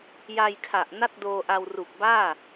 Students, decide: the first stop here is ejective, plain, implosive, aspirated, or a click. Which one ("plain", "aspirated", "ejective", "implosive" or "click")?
aspirated